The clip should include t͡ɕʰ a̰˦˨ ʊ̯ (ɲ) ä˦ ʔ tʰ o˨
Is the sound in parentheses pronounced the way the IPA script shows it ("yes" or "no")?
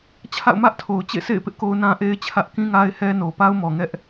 no